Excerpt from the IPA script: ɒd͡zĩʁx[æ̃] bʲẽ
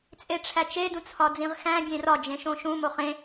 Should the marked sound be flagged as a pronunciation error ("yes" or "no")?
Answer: no